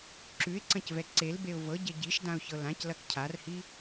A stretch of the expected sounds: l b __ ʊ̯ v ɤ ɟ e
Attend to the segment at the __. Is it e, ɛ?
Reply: e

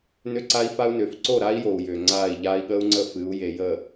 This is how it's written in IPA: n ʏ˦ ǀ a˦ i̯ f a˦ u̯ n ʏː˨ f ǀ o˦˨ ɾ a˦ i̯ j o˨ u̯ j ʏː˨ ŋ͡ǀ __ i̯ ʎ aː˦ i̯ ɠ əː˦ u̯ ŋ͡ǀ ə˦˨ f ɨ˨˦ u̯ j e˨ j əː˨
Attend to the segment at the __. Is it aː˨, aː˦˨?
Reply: aː˦˨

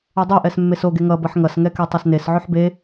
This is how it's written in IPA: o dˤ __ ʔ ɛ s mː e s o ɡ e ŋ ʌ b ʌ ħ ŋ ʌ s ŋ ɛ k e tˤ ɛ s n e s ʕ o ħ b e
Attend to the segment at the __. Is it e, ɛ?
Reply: ɛ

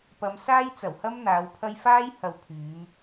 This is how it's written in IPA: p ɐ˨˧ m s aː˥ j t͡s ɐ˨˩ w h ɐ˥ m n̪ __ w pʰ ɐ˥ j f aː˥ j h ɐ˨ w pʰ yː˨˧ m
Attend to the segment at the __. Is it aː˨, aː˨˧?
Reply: aː˨˧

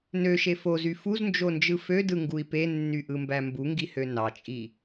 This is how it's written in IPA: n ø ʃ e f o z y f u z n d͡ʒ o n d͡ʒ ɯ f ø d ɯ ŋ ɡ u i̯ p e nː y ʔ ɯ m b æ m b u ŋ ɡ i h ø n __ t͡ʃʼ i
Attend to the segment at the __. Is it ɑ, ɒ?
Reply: ɑ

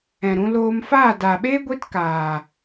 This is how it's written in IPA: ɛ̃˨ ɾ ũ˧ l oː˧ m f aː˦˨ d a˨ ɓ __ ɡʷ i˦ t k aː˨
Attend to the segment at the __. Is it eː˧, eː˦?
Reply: eː˦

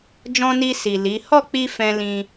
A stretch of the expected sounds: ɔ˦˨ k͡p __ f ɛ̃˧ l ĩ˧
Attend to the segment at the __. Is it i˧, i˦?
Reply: i˧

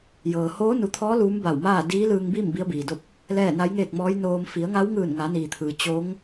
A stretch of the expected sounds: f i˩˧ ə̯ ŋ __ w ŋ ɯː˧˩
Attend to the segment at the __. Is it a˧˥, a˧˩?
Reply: a˧˥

